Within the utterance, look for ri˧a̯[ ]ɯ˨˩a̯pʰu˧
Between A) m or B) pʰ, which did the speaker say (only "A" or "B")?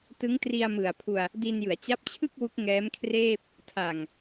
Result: A